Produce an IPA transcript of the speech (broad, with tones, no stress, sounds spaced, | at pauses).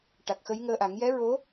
ʈ a˨˩ k̚ x ə˧˥ j ŋ əː˧ ʔ a˨˩˦ ŋ j ɛ˧˥ ɹ o˧˥